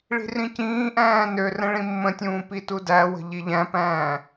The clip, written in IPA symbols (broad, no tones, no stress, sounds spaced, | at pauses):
ɭ i̤ r ĩ c ĩː ʔ æ̃ː n ø r ə̃ ɭ ĩ mː ə̃ tʲ ũː p i t u d æ w ə̤ ʎ i ʎ æ̃ p æ̃ː